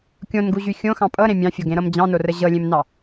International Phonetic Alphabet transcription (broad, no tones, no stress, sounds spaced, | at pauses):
kʲ õ n ɡ u ʑ y xʲ õ x ɑ̃ pʼ ɤ ɾ ẽ mʲ ɑ̃ fʲ o ɡ ẽ ɾ ɤ m d͡ʑ ɑ̃ n o r ə ʑ ɤ lʲ ẽ m n ɑ